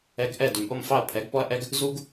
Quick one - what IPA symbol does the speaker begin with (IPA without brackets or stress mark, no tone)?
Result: ɛ